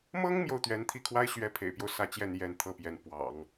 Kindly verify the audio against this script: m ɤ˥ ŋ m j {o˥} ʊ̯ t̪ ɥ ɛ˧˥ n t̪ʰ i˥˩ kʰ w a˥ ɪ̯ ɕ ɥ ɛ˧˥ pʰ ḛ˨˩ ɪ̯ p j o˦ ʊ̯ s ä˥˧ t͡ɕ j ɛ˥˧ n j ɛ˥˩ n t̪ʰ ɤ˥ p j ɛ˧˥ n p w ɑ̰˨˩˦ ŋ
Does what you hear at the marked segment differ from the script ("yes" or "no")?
yes